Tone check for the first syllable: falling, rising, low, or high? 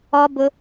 high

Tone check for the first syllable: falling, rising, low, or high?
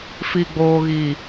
low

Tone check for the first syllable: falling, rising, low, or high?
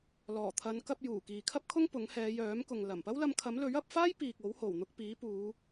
low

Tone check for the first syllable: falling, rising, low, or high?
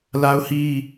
high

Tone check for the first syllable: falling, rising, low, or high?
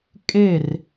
falling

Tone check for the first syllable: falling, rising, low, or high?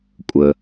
low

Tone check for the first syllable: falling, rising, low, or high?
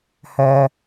low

